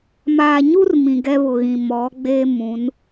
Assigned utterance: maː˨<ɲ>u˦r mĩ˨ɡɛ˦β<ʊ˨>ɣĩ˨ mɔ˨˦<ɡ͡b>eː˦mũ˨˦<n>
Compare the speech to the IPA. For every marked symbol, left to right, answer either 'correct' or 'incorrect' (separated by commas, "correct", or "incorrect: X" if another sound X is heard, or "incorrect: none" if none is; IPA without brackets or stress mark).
correct, correct, correct, correct